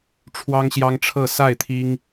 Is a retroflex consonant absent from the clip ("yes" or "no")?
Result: no